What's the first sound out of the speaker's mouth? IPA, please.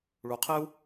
ɭ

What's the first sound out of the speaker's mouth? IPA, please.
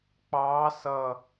k͡p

